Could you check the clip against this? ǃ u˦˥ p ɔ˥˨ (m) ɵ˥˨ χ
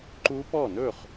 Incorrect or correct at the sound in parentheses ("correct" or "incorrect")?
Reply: incorrect